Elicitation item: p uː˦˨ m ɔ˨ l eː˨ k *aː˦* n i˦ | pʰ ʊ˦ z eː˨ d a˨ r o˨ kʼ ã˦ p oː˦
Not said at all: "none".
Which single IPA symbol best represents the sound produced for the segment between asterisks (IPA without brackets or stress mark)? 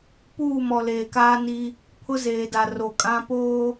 aː˦